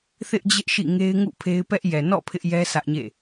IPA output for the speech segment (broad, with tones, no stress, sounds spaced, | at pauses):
θ ɪ˦ ʔ d͡ʑ ɪ˦ ʔ ʃ ḭ˦˨ ŋ e˦ ɪ̯ ŋ ṵ˦˨ pʰ e˦ ɪ̯ p ɛ˦ ʔ j ɛ˨ n ɔ̰˦˨ pʰ ɪ˦ ʔ j ɛ˦ sʰ ä˦ ʔ ɲ ḛ˦˨